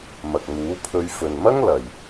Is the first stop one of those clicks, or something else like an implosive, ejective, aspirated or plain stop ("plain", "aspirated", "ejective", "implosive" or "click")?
plain